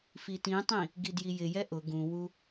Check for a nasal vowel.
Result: present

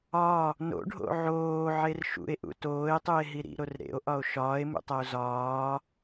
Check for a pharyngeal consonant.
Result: present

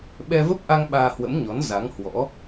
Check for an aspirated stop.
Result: absent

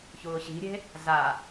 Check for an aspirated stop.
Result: absent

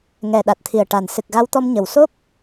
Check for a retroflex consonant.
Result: present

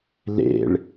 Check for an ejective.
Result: absent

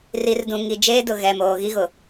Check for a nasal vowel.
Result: present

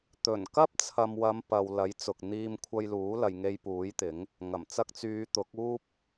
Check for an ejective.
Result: absent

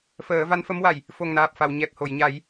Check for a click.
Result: absent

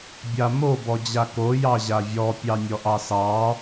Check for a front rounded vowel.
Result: absent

